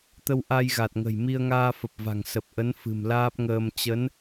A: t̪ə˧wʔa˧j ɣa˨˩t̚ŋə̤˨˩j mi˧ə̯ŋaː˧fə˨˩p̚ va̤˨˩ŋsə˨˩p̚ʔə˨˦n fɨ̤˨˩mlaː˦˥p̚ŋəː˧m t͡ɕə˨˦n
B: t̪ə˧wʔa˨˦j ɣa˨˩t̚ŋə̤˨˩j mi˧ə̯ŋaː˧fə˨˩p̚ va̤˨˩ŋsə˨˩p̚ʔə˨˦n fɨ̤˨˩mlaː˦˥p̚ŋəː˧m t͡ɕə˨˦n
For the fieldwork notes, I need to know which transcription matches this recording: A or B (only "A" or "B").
A